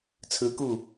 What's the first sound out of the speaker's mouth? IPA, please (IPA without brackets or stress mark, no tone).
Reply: t͡sʰ